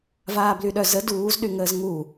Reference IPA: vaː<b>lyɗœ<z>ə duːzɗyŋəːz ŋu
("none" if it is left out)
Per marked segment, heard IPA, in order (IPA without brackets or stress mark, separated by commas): b, z